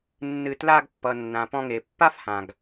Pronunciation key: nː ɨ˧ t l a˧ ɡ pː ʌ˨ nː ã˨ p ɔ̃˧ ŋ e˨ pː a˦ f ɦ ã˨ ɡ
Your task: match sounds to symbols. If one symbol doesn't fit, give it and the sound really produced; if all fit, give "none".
ɦ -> h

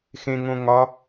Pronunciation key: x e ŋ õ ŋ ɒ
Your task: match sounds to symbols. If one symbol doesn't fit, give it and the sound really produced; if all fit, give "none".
e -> ẽ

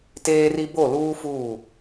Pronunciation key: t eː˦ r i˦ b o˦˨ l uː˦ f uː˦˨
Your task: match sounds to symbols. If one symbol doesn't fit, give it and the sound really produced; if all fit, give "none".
none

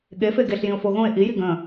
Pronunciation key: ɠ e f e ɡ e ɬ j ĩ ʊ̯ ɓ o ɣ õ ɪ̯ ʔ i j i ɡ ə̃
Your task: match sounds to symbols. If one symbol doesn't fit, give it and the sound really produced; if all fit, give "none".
ɓ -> f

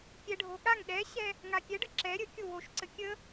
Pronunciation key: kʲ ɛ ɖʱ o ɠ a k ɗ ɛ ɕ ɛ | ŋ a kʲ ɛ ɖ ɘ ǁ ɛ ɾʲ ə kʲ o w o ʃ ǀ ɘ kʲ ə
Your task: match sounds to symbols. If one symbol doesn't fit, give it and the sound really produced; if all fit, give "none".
k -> ŋ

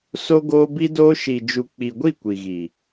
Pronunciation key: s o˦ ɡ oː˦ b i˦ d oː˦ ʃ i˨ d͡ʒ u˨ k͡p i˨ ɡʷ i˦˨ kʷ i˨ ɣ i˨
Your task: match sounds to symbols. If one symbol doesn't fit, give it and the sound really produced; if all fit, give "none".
none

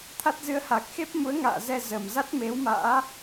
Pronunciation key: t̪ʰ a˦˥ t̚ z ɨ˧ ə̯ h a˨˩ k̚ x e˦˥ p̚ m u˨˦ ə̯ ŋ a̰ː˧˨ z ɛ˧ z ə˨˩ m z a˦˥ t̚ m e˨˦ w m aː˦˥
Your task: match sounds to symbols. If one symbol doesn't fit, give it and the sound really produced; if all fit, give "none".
aː˦˥ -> a̰ː˧˥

